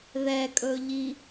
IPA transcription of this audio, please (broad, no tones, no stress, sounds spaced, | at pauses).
ð ɛ kʼ ɵ ʎ i